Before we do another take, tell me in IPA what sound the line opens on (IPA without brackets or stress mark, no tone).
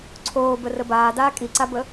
ǀʰ